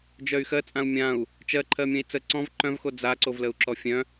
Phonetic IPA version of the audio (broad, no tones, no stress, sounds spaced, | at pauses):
d͡ʒ œ y̯ x ɜ t͡sʼ ã u̯ mʲ ã u̯ | t͡ʃ ɜ ǃʰ ɜ mʲ œ̃ i̯ t͡s ə ǀ ɔ̃ v ǃ œ̃ v x o d͡z a ǀ o v l ə u̯ ǁ ɔ fʲ œ̃